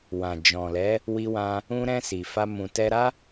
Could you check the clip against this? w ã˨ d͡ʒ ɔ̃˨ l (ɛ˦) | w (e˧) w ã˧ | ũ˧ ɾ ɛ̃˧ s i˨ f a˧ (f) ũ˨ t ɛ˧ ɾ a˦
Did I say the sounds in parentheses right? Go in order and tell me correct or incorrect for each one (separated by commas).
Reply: incorrect, incorrect, incorrect